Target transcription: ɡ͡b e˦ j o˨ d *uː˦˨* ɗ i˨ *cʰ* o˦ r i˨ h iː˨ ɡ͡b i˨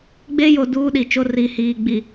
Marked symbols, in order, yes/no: no, no

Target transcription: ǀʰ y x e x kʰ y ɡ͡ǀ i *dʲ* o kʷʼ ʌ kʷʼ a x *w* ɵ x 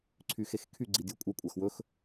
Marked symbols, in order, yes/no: yes, yes

